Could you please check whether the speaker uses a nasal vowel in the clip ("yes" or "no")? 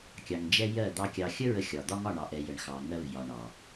no